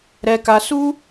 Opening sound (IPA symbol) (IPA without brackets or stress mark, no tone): ɾ